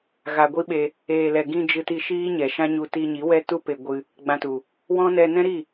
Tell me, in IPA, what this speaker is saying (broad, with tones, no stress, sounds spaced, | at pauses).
ɣ a˨ ɡʷ i˦ ɓ e˧ | eː˨ l ɛ˨ ɡ ĩ˧ d͡ʒ ɨ˧ t i˧ ʃ iː˦ ɲ ɛ˨ ʃ ã˦ ɲ u˧ t i˧ ɲ i˨˦ w ɛ˦ t u˦ p e˧ ɡʷ ɨ˧ | ɡ͡b ã˧ t u˨ | w ɔ̃˦ n ɛ˧ n ɛ̃˦ ɾ i˦˨